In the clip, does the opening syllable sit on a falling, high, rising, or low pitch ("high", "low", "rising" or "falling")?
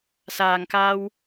low